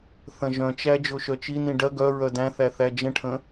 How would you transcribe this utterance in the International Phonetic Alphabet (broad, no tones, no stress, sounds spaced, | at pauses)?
θ ɐ̃ ʒ œ̃ t͡ʃ æ d͡ʒ o ʃ œ t͡ʃ i n ĩ ɖ ɐ ɡ œ ɹ œ d æ̃ θ æ θ æ d͡ʒ ə̃ ʈʰ ə̃